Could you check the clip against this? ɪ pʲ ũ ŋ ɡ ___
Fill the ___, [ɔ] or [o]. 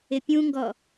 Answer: ɔ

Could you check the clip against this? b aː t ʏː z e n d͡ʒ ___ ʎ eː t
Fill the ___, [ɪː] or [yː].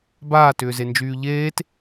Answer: yː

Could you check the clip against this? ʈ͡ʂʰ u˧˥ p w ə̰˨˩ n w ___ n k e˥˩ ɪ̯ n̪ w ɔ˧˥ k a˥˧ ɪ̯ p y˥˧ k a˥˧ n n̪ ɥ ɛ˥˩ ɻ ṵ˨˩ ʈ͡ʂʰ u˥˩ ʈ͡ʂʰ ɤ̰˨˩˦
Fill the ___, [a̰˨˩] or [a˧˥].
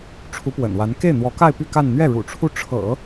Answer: a˧˥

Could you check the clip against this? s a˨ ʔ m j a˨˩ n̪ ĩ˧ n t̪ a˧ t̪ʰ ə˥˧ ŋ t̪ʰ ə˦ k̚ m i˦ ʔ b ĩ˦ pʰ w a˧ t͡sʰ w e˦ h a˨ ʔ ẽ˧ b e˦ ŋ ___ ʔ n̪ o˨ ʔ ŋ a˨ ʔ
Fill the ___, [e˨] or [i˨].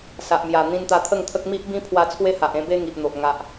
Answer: i˨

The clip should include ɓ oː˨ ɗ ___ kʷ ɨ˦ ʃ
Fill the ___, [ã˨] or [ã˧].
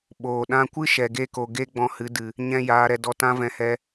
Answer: ã˧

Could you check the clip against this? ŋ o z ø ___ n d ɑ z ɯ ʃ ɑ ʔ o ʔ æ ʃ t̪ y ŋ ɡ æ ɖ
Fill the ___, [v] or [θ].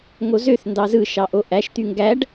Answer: θ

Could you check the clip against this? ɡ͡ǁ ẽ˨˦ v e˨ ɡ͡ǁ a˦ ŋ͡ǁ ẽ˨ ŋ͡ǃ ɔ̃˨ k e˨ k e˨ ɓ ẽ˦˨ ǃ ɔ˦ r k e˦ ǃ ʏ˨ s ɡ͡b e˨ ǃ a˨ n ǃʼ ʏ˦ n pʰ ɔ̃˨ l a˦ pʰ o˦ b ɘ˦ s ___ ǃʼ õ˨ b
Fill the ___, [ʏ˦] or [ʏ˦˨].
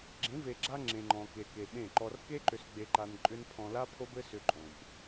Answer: ʏ˦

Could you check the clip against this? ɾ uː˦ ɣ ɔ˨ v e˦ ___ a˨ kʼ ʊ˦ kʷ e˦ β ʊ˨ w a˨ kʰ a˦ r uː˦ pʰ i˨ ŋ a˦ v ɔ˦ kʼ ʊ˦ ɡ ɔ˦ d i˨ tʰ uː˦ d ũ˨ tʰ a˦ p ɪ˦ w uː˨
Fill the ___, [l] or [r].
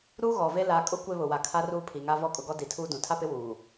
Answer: l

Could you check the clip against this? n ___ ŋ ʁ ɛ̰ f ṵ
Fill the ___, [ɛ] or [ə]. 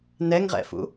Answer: ɛ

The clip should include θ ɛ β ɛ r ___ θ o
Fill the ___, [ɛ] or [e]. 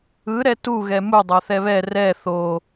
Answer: ɛ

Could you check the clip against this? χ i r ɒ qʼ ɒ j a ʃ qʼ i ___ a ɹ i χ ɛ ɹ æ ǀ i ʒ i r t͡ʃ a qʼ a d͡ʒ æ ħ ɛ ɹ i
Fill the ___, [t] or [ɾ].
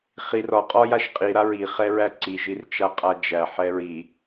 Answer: ɾ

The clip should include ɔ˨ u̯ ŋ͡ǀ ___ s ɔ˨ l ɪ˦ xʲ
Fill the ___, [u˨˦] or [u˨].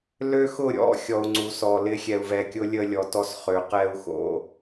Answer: u˨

